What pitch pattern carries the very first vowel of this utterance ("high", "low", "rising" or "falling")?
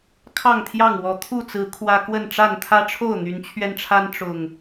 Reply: falling